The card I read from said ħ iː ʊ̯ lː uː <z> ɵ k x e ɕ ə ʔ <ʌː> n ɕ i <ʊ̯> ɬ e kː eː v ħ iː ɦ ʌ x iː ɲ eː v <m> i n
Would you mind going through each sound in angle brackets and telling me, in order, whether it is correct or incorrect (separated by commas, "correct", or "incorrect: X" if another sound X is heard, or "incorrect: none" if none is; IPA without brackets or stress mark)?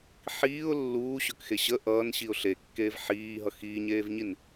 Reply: incorrect: ɕ, correct, correct, incorrect: ɲ